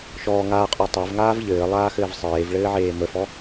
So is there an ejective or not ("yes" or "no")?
yes